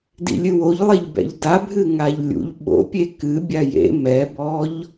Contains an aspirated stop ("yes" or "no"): no